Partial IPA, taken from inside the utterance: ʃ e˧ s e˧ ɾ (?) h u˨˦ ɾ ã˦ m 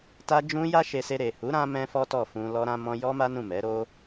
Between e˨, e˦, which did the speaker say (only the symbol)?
e˨